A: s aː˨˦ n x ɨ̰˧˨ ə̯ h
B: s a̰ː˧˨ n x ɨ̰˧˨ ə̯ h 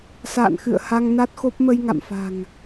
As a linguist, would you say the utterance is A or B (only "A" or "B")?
B